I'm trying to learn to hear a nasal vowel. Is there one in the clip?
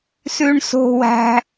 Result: no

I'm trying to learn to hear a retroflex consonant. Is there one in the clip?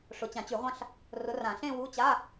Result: yes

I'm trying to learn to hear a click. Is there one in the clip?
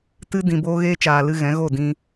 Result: no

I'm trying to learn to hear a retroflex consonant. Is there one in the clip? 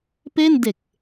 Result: no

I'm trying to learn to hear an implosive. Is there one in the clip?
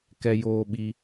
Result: yes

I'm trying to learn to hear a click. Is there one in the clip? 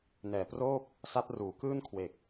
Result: no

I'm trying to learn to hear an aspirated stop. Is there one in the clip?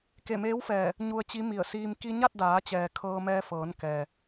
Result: yes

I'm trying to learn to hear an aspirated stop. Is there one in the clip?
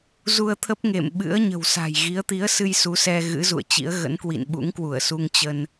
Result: yes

